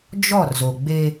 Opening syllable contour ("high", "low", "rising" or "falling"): falling